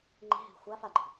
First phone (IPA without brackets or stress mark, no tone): ŋ͡ǃ